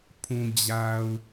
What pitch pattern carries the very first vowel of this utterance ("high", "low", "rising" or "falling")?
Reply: low